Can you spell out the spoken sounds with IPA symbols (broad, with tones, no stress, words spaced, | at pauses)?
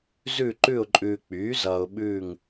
zʉ˦˨ ǃʉ˦˨ʊ̯ǃʼʉː˨k͡pyː˩˥ zʌː˨ʊ̯ɓʉː˦˨ŋ